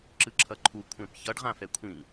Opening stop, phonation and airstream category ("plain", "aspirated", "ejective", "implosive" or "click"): click